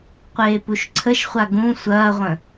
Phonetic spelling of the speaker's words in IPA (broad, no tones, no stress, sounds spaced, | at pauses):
qʷ eː p u ʃ ǀʰ ə ʃ χʷ a ɡ ũ sʷ ɐː ʁʷ ə̃